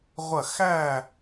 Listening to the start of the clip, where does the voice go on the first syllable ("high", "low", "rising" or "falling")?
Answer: falling